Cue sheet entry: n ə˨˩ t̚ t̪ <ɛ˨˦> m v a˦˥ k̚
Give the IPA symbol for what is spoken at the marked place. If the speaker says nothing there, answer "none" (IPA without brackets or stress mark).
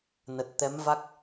ɛ˨˦